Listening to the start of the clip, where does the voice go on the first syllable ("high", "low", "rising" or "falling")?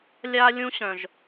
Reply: high